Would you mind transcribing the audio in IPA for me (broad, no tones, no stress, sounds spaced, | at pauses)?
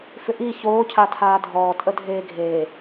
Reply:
f ʏ ʔ i ç oː cʰ a tʰ aː dʱ ɔː tʼ ə dʱ eː ɡʱ eː